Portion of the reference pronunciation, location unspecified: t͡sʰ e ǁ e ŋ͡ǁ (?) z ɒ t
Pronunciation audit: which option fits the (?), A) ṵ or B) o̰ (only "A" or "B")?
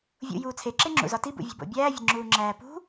A